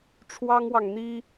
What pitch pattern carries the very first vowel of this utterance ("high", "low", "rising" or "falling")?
high